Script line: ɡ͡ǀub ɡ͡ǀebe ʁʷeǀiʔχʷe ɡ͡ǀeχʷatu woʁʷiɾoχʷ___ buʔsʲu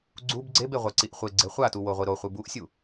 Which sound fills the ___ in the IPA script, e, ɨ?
ɨ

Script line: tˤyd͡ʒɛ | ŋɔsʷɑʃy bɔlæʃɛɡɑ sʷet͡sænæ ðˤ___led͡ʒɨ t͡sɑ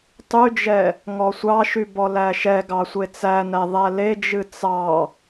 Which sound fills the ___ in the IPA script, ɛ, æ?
æ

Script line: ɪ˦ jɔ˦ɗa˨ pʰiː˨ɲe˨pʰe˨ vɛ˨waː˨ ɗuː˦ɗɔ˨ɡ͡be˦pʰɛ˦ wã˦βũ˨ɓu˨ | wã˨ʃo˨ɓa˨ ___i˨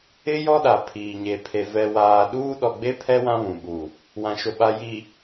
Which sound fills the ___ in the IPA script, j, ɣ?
j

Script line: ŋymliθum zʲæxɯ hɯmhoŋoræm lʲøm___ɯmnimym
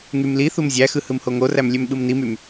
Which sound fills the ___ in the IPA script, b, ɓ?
ɓ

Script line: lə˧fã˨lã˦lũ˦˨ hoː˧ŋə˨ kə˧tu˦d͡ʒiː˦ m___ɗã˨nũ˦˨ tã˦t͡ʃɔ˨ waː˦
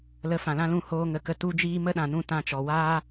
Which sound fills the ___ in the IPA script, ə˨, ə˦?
ə˦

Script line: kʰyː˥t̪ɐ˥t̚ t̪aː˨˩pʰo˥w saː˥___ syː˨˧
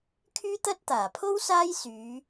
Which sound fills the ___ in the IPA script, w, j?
j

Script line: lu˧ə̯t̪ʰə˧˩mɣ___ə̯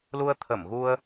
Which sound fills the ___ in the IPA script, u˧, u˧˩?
u˧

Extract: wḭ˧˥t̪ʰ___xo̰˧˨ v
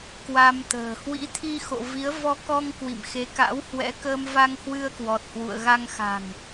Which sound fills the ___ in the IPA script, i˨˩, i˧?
i˧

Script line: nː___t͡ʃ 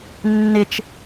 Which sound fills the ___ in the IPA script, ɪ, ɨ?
ɪ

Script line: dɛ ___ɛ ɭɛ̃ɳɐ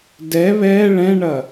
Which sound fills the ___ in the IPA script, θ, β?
β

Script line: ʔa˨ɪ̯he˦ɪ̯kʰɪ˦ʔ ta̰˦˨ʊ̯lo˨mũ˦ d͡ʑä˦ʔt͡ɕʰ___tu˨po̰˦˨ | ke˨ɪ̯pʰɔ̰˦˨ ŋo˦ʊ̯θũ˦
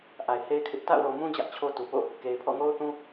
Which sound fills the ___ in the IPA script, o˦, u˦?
o˦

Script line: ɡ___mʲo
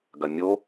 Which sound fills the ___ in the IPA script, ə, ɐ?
ɐ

